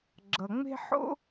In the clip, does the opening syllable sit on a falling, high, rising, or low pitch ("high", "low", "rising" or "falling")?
low